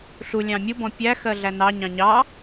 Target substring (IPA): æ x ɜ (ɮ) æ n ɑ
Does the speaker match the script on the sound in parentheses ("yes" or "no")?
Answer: yes